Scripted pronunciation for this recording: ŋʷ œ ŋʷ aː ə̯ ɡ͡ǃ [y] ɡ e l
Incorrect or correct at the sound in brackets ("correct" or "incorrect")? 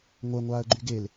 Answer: correct